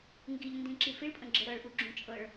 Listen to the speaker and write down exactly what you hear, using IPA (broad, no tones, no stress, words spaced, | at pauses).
ŋɡiʎndĩǁi fiɭpʼə̃ɡ͡ǁə ɾɤɭʔuɡ͡ǁũ t͡ʃʼɤɭ